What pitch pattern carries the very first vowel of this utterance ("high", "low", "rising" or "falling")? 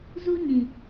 high